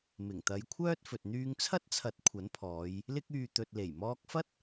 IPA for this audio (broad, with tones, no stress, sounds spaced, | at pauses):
m ɪ˨˩ ŋ t̪ ɐ˨˧ j kʷʰ œː˥ t̚ f ɵ˨ t̚ n̪ yː˧ ŋ t͡sʰ ɐ˥ t̚ t͡sʰ ɐ˨˥ t̚ kʷʰ ɐ˨˥ n pʰ ɔː˨˧ j | l ɪ˧ k̚ yː˨ t̪ ɵ˨ t̚ l e˨˩ j m ɔː˧ k̚ f ɐ˥ t̚